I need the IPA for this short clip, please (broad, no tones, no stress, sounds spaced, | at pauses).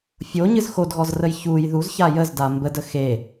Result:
fʲ o ɲ ɨ z x o d ɣ ɔ z r ə j ç u j ð u z ç a j ə z d a m b ə d ə x e